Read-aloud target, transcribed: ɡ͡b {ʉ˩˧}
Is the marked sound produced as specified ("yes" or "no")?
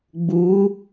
no